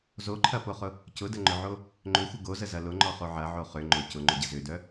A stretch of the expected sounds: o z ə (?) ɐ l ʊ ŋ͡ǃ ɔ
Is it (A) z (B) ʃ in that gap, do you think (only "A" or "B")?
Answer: A